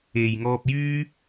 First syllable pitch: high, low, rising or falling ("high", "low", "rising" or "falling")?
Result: low